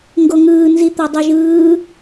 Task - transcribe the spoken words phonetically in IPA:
ŋ ɡ o ŋ ɯː n z i t̪ ɔ dˤ u ʒ ɯː

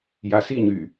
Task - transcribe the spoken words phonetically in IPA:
j a s i ɲ y

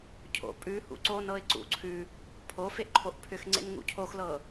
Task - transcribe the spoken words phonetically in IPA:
cʰ o̰ pʼ ʉ h ṵ ǀ o n ɤ ɪ̯ ǀ ṵ ǀʰ ʉ | pʰ o f e ʔ ǃʰ o ʔ pʰ ʏ x ŋ͡ǀ ḛ n ŋ ṵ cʰ o x l ɤ

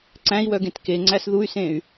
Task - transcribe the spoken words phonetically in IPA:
ǀ æ̃ i̯ w œ ɡ ẽ t k e ŋ͡ǀ æ s ð u y̯ s ẽ y̯

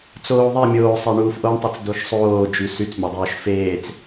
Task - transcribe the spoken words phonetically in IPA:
t͡s oː ðˤ e mʲ oː sˤ e ɳ uː f ʔ o ɳ tˤ y t͡s d o ʃ sˤ oː d͡ʒ y s y t͡s mʲ o dˤ oː ʃ f eː t͡s

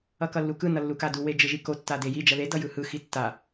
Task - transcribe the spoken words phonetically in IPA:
ʌ k ʌ lː u k ɯ n ʌ lː u k a d u w e d͡ʒ ɯ ʒ i k o tː a d e j i d͡ʒ ʌ ð e d ʌ j ɯ h ɯ x i tː a

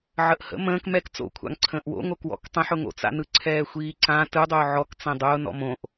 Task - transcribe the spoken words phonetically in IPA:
ʕ ə ʔ h ə̰ m ə̃ː k m ɛ k t͡s o̰ kʷʰ a̰ ŋ ǀʰ ə̃ː ʔ w o̰ ŋ o k w ɔ̰ k tˤ ə̃ ħ ʊ ŋ o̰ t͡s a̰ n ɯ ǀʰ ɛː xʷ iː ǀ ã t ɯ dˤ ʊː ʕ ɔ k t͡s ɛ̃ dˤ ʊː n ɔ̰ m õ ʔ

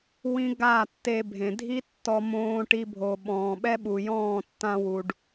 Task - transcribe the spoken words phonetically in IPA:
w ĩ˦ ɡ a˦˨ tː e˧ bʱ ẽ˨ dʱ i˦ tː ɔ˧ m õː˧ ʈ i˧ bʱ o˨ ɓ ɔ̃ː˨ ɓ ɛ˦ ɓ u˨ j ɔ̃ː˦˨ tː ã˧ w u˨ ɖ

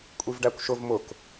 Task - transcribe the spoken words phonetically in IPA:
kʷʼ i v ɖ æ kʷ ʃ ʊ v m ʊ k

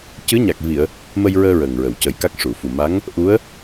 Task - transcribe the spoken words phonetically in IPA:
c ɨ˧˥ ɲ a˨˩ k̚ v i˨˩˨ ə̯ | m ə˧ j ɹ əː˧ ɹ əː˨˩ ŋ ɹ ə˨˩˨ w c ə˨˩˦ j k a˦˥ k̚ ʂ u˨˩˨ f u˨˩ m a˧˥ ŋ | ʔ u˧˥ ə̯

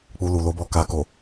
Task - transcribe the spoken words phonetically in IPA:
k͡p u˧ l u˨ l o˨˦ b ɔ˧ k a˨ k o˨

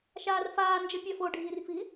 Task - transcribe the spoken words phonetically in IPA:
ʃ aː r f aː n d͡ʒ ʌ pʲ a f o ɖʱ iː r f i

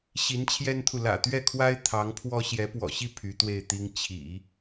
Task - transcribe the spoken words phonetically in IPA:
ɕ i˧˥ n t͡ɕʰ j ɛ˥ n t̪ʰ u˨ l ä̰˨˩ t̪ ɥ ɛ˥˩ kʰ w a˥ ɪ̯ t̪ʰ ɑ˧˥ ŋ pʰ w ɔ˥ ɕ j ɛ˧˥ p w ɔ̰˨˩ ɕ i˥˩ pʰ y˧˥ t̪ w e˥˩ ɪ̯ t̪ i˥ ŋ t͡ɕʰ ḭ˨˩˦

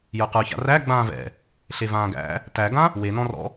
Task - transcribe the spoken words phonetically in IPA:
j ə˞ q ə˞ ç a̰ r æ ɡ͡b ãː v ɛ̰ | ɬ e v ãː ɡ æ̰ | t æ ɡ ã | w e n ɔ̃ r ɔ̰

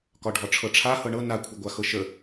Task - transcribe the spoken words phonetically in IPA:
k ɒ ɖʱ ɒ ʈ͡ʂʰ ɤ ʈ͡ʂʰ a h ɤ ɳ ɤ n a kʷʰ ɘ ɡʷ a x ɤ ʃ ə

